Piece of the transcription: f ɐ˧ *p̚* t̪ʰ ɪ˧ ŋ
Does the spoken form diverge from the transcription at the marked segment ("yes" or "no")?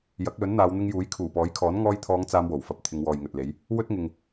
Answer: no